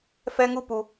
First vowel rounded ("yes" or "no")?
no